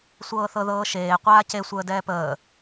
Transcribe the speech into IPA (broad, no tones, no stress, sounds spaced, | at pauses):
sʷ ɤː θ ɤ ð ɤː ʃ eː qʷ aː c e sʷ əː d ɛː p əː